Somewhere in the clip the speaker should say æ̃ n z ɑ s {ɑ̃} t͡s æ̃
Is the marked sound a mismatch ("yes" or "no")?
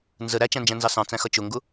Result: no